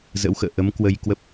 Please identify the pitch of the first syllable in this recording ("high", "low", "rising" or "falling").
rising